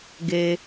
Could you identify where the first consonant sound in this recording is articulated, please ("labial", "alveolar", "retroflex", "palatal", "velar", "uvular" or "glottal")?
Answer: velar